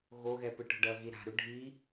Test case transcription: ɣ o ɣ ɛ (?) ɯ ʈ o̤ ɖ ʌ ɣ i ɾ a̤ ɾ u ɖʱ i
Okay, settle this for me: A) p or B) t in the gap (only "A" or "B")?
A